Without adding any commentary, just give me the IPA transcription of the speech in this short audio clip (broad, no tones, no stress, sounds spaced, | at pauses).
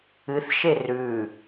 ɨ θ ʃ e r ʉ